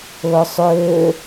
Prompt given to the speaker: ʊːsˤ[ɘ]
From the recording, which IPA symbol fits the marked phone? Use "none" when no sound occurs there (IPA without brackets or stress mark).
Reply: ø